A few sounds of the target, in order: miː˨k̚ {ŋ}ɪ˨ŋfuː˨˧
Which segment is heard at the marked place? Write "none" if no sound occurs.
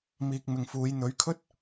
m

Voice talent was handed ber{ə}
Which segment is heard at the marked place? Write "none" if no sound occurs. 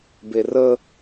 ə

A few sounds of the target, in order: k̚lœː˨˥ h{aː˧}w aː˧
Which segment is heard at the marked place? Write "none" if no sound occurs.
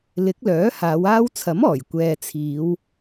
aː˨˧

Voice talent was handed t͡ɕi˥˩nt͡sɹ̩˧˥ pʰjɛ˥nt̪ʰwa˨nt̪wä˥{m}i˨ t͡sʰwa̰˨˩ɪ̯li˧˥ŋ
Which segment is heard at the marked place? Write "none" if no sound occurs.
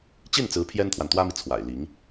m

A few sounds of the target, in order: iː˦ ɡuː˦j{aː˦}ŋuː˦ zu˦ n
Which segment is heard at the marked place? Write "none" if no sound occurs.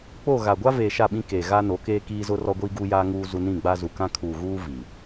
aː˦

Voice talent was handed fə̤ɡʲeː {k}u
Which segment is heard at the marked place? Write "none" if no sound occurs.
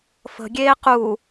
q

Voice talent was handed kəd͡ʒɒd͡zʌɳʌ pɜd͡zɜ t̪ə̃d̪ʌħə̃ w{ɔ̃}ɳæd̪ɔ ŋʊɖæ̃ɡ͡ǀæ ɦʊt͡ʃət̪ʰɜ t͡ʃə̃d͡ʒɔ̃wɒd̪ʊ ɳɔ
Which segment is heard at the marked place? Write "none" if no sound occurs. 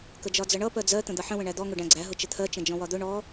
ə̃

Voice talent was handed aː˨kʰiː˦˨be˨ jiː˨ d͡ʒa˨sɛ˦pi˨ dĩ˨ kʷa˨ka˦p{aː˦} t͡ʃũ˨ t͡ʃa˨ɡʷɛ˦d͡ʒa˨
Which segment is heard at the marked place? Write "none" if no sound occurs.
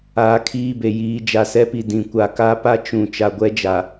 a˦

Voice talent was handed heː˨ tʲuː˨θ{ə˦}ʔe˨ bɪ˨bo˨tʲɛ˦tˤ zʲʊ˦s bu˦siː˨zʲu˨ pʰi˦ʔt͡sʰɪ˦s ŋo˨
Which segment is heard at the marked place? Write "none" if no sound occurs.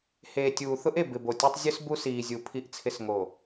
ʊ˦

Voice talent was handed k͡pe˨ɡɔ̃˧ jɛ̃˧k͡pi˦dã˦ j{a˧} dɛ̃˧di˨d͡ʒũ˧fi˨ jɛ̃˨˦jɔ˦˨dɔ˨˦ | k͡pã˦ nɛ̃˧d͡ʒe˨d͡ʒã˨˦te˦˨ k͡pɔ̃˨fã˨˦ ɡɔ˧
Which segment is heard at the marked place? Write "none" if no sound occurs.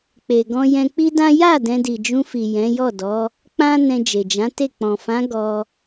a˦˨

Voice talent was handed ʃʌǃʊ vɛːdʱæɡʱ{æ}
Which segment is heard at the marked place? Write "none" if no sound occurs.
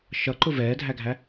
æ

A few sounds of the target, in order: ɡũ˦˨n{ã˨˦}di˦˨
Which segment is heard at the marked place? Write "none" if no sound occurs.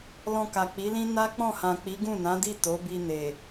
ã˨˦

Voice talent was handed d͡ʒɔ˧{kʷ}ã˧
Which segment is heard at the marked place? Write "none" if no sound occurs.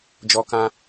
k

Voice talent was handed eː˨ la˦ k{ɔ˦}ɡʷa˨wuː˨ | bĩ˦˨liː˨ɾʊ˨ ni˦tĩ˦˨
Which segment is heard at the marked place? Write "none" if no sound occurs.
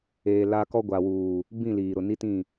ɔ˦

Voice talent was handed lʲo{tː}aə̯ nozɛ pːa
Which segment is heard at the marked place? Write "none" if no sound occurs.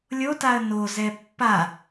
t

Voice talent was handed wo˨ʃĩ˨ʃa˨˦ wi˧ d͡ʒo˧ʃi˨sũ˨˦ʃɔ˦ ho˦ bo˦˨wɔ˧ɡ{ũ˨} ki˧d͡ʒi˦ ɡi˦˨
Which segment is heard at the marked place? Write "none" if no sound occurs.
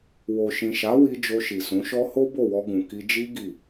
ũ˨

